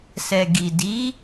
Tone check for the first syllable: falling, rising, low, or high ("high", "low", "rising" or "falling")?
low